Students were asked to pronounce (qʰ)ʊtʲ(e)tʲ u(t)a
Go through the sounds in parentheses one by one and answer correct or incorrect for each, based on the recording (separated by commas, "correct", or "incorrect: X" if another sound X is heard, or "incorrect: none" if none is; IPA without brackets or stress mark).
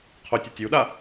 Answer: correct, correct, incorrect: ɗ